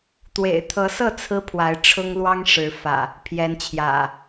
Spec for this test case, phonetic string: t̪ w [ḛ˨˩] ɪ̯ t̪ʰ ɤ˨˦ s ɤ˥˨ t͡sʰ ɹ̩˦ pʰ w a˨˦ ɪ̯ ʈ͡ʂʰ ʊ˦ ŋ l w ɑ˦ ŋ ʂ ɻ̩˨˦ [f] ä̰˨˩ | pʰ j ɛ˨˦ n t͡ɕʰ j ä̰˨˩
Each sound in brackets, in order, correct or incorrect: correct, correct

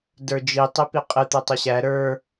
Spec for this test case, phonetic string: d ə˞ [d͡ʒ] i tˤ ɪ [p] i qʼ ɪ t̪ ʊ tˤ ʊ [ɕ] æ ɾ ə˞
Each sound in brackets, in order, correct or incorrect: correct, correct, correct

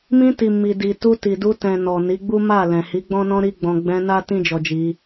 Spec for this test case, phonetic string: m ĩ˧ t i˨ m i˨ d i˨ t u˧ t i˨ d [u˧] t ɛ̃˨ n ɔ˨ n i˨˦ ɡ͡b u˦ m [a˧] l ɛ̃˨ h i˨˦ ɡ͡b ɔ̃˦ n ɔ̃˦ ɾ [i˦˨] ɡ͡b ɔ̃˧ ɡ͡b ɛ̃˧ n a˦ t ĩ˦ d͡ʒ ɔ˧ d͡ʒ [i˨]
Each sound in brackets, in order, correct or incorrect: correct, incorrect: a˦˨, incorrect: i˦, incorrect: i˧

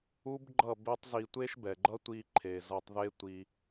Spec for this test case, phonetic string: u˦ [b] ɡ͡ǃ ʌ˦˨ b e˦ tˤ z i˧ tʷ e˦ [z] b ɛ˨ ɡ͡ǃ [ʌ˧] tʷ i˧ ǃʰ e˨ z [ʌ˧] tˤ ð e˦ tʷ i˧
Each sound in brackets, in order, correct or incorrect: correct, incorrect: ʃ, incorrect: ʌ˦, correct

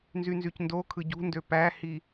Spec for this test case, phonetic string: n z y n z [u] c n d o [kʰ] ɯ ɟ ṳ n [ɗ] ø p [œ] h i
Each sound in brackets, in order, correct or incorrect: incorrect: y, correct, incorrect: d, incorrect: æ

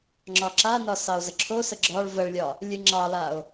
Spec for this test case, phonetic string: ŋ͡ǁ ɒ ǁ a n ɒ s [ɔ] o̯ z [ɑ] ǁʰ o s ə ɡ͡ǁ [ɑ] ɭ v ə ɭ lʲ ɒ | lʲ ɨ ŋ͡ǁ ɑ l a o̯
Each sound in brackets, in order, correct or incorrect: incorrect: ɑ, incorrect: ə, incorrect: ɒ

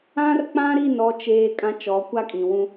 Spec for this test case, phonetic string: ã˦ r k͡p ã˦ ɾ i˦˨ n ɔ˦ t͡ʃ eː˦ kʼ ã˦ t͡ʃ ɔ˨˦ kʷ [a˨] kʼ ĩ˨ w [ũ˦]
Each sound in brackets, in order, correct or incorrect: incorrect: a˦, correct

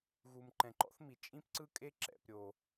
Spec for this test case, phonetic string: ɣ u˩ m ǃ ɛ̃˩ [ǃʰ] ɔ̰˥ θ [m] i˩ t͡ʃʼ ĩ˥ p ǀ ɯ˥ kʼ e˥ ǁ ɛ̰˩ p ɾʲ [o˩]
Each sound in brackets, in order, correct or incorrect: incorrect: ǃ, correct, correct

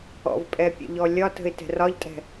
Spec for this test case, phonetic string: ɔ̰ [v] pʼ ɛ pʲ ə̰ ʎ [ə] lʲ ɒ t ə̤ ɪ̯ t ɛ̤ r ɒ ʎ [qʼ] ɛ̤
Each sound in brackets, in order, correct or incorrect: correct, incorrect: ɔ, incorrect: tʼ

